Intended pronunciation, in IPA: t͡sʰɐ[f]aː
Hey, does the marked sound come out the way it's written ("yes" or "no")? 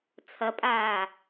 no